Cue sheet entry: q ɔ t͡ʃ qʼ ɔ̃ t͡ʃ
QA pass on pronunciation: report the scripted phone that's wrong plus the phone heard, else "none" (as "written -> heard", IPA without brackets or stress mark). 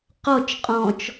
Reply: none